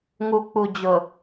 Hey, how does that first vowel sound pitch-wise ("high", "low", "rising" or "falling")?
low